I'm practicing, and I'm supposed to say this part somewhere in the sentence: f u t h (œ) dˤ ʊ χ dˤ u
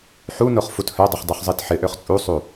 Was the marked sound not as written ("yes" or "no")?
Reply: no